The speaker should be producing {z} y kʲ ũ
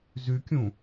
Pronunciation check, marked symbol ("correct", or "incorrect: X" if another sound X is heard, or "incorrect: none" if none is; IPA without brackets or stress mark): correct